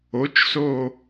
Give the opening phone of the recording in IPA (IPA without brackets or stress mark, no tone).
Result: o